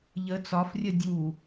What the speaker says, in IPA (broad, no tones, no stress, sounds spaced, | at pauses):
ʎ ə t͡s ɒ f rʲ ə dʲ u